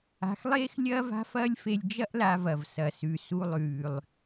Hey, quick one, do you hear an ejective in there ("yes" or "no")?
no